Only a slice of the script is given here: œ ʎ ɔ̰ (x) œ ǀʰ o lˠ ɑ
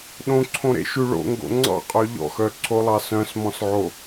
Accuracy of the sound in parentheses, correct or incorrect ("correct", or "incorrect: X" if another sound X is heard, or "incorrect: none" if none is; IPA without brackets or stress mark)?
correct